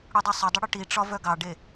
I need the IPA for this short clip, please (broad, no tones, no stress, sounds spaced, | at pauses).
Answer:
ɽ u dˤ œ sˤ ʊ dˤ ʊ ɽ ʊ ʈ i ʈ͡ʂ ɒ v œ ɡ ɑ ɖ e